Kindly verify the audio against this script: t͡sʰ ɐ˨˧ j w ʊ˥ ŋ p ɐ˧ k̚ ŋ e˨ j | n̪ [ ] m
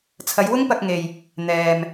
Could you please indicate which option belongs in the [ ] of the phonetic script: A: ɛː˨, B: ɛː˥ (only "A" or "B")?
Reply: A